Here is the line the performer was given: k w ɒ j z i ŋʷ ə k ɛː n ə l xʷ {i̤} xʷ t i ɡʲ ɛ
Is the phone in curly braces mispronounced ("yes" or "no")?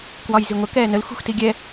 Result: no